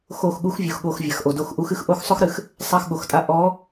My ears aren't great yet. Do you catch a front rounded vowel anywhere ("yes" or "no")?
no